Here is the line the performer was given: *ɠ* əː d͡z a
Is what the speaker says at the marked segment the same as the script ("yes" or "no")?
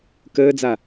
no